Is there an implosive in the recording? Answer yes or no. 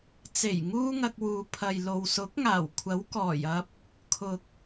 no